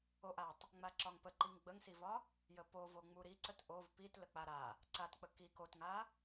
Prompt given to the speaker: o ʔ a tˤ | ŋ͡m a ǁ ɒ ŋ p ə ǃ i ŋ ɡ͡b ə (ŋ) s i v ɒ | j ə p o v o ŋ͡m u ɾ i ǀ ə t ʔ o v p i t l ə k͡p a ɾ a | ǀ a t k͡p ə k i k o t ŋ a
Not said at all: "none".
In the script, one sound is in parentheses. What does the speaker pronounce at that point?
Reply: ŋ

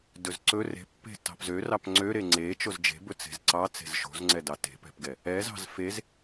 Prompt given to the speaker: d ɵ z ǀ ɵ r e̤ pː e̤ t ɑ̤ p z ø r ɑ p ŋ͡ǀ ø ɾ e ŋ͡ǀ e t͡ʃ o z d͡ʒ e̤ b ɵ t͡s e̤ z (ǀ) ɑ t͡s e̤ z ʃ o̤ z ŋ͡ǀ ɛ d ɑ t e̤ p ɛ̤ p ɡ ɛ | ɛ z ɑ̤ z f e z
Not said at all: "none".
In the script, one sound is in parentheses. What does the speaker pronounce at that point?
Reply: ǀ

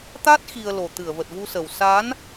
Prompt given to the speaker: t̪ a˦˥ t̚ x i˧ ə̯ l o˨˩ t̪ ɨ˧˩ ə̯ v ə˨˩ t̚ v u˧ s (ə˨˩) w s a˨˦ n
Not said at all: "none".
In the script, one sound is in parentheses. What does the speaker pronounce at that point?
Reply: ə˨˩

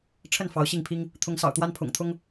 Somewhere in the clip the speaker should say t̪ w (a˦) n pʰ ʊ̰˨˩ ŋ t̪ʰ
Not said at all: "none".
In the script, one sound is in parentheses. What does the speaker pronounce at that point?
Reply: a˦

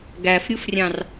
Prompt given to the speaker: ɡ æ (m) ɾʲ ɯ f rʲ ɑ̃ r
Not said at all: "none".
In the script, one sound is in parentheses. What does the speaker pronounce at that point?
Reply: f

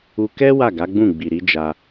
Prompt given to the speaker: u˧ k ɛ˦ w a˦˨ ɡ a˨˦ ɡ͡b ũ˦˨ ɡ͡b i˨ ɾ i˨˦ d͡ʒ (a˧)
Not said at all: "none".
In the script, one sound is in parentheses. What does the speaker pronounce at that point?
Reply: a˧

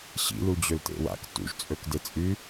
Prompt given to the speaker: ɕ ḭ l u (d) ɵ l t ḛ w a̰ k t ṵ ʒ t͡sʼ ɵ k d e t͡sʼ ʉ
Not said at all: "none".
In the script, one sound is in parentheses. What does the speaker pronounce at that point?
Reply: d͡ʑ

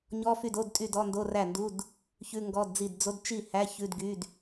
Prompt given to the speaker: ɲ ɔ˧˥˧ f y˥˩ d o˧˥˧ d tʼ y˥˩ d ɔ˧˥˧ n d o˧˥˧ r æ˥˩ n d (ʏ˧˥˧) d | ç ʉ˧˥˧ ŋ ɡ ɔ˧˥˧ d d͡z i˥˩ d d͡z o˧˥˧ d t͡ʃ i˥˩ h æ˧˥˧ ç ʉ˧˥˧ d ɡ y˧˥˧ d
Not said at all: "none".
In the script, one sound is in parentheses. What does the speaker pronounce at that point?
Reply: u˧˥˧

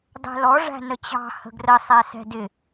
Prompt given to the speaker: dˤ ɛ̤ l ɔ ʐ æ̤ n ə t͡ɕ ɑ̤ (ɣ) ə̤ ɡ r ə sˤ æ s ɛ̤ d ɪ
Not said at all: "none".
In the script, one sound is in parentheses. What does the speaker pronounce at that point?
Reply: h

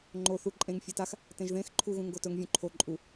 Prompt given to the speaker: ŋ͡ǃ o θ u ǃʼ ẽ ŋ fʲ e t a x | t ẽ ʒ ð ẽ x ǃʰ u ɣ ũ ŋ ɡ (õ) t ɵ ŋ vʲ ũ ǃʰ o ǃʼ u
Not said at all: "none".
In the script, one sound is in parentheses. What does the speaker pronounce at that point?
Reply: o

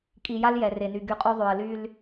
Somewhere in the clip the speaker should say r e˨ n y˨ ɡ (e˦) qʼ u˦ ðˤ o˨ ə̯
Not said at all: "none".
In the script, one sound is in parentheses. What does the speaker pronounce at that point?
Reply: y˦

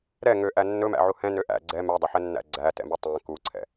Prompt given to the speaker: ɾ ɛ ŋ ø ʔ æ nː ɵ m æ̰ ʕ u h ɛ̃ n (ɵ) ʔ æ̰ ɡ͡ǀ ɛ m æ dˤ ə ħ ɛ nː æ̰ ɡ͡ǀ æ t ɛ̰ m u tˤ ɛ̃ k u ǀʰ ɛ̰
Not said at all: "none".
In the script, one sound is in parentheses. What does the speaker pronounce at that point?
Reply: ø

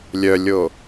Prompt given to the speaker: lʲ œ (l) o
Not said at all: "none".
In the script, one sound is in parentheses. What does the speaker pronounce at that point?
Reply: lʲ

